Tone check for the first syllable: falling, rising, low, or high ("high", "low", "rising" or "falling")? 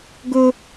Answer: high